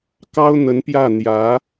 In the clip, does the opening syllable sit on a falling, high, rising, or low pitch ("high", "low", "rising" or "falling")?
high